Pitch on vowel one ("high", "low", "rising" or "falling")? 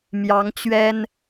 rising